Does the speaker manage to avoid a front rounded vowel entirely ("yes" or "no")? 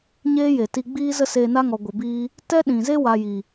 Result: yes